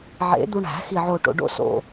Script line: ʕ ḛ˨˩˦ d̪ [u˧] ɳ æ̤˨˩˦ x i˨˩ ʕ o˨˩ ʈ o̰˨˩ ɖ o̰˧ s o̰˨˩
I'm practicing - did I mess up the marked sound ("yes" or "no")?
no